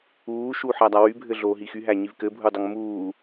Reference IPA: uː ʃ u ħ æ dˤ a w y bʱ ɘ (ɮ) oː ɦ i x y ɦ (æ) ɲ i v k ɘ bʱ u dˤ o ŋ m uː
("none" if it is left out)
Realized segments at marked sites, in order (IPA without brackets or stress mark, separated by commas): ɮ, æ